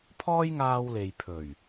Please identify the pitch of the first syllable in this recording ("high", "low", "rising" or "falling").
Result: high